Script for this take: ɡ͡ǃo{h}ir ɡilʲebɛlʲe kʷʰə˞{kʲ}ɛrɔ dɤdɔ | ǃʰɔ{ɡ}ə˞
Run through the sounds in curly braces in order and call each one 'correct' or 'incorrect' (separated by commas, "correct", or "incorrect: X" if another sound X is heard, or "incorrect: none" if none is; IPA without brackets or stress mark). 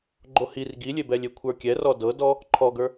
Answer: correct, correct, correct